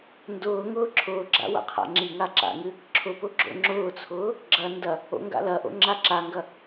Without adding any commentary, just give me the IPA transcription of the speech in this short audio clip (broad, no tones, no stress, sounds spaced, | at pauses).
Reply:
n d ʊː ŋ ʊː ǁʰ ʊː ɡ͡ǁ a̰ w a̰ qʰ a̰ ŋ͡ǁ i ŋ a ǁ a̰ ŋ ɨ | ǁʰ ʊ p ʊ ɡ͡ǁ o̰ ŋ͡ǁ ʊː t͡sʰ ʊː | ɡ͡ǁ ɐ n d ɐ | o̰ ŋ ɡ a̰ l ɐ ʔ o̰ ŋ͡ǁ a ǁ a ŋ ɡ ɐ